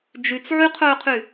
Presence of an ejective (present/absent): absent